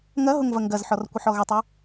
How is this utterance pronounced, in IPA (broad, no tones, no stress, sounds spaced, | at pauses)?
ŋ ɐ ɦ ʊ ŋ v ɐ ŋ ɡ ɐ z ħ ɔ r kʷ ə ħ ɔ ɣ ʏ tˤ œ